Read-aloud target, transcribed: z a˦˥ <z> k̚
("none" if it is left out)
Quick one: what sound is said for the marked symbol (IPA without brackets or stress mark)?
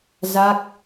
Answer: none